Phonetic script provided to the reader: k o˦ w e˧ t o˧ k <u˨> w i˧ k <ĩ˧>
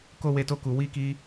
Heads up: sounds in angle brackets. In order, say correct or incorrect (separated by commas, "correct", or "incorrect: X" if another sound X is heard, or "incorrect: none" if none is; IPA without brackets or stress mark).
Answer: correct, incorrect: i˧